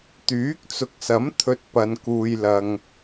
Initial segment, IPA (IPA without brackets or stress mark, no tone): t̪